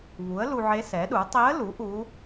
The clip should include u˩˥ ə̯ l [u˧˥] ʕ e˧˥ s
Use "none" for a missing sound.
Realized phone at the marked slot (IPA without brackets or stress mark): u˧